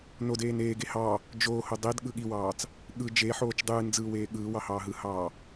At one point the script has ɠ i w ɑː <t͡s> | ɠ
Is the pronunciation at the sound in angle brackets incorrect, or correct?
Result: correct